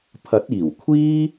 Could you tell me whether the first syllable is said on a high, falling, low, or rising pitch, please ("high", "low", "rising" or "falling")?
rising